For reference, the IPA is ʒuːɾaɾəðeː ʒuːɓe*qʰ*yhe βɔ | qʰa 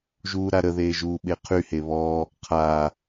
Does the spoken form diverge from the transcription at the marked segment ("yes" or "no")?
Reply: no